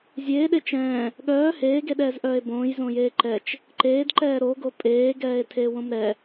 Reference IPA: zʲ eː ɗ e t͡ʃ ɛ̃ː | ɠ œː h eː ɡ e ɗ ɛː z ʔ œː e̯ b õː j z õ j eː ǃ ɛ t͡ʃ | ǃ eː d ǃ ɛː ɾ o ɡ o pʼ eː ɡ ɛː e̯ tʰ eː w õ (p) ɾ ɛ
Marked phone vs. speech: incorrect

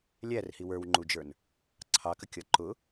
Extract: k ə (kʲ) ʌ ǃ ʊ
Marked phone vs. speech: correct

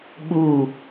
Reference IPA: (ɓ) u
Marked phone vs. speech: correct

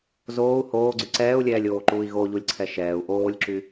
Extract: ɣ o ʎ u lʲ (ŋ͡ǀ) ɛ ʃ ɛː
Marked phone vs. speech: incorrect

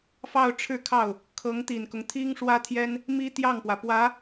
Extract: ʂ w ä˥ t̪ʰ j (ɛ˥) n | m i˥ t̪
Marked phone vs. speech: correct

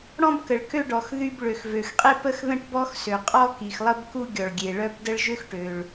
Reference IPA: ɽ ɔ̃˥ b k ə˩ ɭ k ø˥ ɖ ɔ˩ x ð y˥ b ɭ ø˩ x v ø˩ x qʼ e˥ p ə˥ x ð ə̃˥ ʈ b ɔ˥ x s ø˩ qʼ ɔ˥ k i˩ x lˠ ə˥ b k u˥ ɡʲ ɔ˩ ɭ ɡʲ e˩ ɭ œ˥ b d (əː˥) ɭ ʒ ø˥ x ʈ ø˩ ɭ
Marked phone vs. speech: incorrect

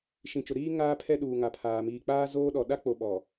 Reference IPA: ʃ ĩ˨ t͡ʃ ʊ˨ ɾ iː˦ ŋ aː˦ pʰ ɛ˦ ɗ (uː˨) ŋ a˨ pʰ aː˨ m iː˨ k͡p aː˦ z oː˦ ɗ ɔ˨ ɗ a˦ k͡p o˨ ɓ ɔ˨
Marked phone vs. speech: correct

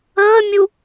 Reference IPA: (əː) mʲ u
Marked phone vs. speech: correct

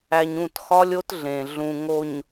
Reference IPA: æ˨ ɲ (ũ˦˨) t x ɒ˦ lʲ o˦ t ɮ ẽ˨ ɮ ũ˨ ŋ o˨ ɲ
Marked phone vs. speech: correct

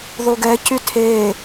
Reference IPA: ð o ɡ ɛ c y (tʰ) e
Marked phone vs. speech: correct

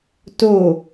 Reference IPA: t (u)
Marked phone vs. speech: incorrect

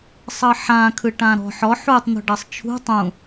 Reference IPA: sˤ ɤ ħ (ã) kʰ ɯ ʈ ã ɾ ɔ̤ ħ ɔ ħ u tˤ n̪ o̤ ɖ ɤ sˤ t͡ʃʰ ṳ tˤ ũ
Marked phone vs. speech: correct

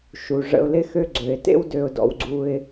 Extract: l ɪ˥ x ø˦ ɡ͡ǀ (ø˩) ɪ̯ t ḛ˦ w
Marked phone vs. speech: correct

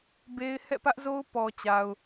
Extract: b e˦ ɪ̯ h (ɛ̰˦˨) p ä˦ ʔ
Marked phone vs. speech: correct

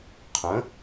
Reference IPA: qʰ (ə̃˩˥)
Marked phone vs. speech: correct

